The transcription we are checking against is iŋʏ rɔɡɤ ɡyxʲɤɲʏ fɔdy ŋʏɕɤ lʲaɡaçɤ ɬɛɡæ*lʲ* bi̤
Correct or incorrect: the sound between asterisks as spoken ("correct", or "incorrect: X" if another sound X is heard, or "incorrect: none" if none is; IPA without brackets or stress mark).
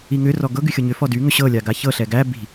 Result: incorrect: none